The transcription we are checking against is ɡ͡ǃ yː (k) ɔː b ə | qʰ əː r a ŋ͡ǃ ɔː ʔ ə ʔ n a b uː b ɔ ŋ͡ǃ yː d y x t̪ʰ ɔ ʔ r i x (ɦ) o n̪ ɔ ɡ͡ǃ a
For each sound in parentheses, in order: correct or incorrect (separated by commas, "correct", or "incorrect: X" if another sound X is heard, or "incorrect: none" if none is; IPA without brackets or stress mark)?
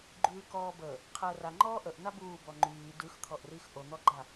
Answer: correct, incorrect: ʔ